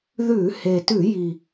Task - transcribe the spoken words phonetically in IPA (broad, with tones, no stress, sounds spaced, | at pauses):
ð ʉ˧˩˧ h e˨˩ t ʉ˧˩˧ j i˨˩